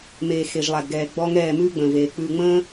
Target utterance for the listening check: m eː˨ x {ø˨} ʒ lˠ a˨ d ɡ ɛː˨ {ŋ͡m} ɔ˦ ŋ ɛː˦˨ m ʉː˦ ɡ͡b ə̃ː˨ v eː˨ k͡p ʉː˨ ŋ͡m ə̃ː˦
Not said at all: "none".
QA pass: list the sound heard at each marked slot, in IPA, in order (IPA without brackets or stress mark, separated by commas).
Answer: e˨, ɡ͡b